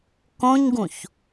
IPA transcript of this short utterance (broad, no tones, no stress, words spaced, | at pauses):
kõɲɡũç